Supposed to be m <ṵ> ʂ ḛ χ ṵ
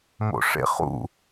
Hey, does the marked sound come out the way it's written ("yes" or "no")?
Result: no